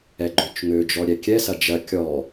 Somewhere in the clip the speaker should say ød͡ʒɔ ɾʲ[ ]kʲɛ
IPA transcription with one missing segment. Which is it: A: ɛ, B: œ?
A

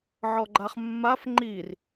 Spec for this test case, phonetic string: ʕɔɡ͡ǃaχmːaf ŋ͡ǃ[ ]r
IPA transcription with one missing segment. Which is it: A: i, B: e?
A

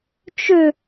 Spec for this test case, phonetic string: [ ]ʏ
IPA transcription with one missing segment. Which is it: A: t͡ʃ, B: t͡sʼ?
A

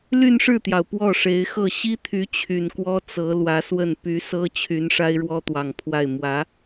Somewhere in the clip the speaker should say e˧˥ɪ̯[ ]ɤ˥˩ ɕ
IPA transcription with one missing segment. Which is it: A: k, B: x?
B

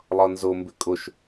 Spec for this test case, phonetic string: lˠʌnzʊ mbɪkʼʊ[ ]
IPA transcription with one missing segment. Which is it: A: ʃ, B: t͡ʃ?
A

